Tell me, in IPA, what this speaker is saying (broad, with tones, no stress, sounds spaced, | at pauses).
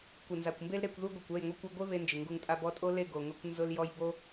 kʷ ɪ˨ n z a˨ kʷ m b e˦ l ɾ e˧ kʷ ð u˦ ɡʷ e˨ kʷ ɛ˦˨ j ŋʷ e˦ kʷ i˧ ɡʷ e˦ β e˦ n d͡ʒ ɪ˨ ŋ ɡ u˧ ŋ tʼ a˧ b ɔ˧ tʼ o˦ l e˦˨ ɡ o˨ ŋ ʊ˧ kʷ n z ʊ˧ l j ɔ˧ j b o˦